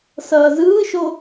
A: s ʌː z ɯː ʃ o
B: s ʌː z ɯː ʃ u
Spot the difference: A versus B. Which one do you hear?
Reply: A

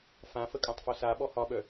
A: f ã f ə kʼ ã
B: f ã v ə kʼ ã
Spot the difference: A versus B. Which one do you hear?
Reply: A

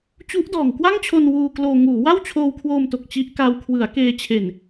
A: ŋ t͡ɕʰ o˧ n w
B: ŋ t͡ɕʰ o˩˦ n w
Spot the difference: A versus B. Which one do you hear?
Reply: A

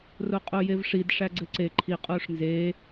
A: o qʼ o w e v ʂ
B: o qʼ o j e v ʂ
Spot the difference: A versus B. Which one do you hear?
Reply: B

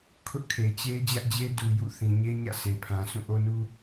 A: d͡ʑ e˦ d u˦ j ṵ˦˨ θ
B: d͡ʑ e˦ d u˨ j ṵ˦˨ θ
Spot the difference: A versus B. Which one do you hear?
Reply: B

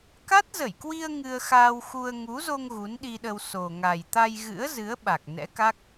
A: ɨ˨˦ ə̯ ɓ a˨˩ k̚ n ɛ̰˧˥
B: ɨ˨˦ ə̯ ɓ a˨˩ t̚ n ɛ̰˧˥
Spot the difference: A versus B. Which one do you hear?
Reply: A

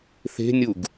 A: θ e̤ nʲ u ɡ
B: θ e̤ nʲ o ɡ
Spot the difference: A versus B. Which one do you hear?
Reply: A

